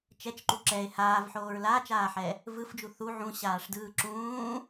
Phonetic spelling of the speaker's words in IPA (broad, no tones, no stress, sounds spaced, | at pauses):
t͡ʃ ɛ t͡ʃ ǃ u ǁ ɛ e̯ h aː v ħ oː ɹ l aː t͡ʃ aː ħ ɛ | v ɯ f d͡ʒ u θ u ʕ ũ ɕ aː ʂ d ɯː ǁ ũː